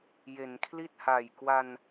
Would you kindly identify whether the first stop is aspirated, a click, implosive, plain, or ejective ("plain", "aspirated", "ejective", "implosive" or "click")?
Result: aspirated